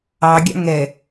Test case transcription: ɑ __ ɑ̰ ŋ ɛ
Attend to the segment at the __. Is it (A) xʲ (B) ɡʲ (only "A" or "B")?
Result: B